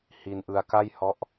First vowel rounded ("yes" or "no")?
no